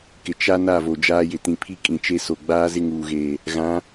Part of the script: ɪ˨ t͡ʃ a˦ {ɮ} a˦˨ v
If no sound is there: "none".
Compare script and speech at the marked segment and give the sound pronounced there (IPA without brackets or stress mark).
n